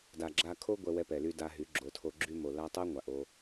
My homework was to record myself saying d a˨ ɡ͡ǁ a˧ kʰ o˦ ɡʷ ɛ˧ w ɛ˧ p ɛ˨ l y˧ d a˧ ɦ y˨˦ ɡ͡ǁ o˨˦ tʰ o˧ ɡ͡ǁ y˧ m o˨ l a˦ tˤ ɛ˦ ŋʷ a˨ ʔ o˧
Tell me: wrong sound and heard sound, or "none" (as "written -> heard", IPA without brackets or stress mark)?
none